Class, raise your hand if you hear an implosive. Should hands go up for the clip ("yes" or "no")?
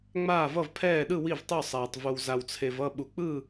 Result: yes